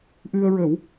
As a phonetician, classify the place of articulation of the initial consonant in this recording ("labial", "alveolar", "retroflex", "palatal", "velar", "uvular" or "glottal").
glottal